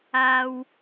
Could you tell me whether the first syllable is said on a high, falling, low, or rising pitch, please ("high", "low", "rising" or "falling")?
high